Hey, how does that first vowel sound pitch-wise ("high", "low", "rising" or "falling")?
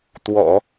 low